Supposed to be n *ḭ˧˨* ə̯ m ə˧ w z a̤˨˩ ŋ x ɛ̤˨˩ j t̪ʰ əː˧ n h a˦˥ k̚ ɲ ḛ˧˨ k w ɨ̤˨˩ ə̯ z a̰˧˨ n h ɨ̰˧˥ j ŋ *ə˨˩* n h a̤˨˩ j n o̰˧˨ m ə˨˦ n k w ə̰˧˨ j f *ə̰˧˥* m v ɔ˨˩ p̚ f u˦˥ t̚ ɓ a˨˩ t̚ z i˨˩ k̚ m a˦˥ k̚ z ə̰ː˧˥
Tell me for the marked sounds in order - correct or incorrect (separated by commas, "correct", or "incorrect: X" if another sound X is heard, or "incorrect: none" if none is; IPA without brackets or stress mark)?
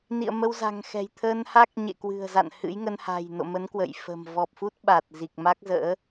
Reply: correct, incorrect: ə˧, incorrect: ə̤˨˩